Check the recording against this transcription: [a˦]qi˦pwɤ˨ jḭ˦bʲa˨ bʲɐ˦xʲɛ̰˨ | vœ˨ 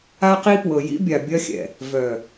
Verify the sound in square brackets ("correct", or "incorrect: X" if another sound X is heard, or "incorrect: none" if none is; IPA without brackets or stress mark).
correct